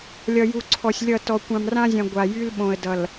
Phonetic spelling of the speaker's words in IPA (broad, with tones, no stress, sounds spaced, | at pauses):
lʲ ʌ˨ j u˨ ǀʰ ɔ˨ sʲ lʲ ʌ˦˨ t ɔ˨ kʷ ã˨ m r ã˦ zʲ ã˨ ɡʷ a˨ j y˦ l ɓ õ˨ ə̯ d ʌ˨ l